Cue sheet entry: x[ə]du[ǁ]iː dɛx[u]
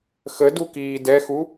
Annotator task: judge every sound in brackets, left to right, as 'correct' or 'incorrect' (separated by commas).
correct, incorrect, correct